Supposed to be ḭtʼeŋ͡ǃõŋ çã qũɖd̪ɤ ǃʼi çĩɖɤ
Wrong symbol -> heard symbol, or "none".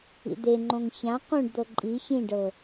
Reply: tʼ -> d̪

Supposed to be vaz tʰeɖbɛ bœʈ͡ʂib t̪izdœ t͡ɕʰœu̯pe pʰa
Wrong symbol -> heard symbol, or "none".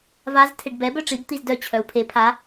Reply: p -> pʰ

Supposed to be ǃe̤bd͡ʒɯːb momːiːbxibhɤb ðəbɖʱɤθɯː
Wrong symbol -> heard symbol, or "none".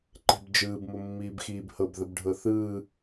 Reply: i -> iː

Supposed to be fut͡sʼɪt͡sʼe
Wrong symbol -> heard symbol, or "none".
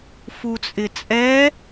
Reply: e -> ɛ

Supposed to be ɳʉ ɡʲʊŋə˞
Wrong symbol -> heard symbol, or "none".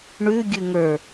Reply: ʊ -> ʉ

